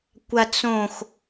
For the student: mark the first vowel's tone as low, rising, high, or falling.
low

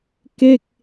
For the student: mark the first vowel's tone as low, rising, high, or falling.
falling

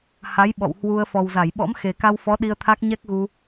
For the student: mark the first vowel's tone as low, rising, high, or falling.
rising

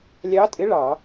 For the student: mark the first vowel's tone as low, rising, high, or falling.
rising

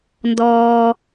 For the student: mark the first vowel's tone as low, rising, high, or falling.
low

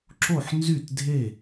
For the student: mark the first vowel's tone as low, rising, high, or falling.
falling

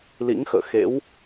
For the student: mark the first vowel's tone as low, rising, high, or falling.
rising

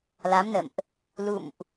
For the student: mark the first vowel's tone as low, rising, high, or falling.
rising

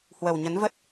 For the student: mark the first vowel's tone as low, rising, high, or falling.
low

